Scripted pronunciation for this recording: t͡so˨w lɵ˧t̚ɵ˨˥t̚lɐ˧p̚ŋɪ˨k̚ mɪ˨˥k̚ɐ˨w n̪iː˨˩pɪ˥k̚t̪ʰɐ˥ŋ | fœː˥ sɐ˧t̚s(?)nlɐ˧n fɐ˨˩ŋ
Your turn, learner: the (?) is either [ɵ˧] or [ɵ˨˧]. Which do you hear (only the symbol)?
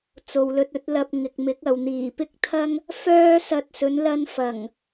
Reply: ɵ˨˧